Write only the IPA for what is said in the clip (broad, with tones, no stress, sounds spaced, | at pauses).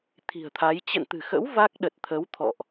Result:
t̪ʰ i̤˨˩ ə̯ t̪ʰ a˨˦ j t͡ɕ ə̰˧˨ n t̪ ɨ̤˨˩ x ə̰˧˥ w v a˦˥ k̚ ɗ ə˨˩ t̚ t̪ʰ ə˨˦ w t̪ʰ ɔ̰˧˨ ʔ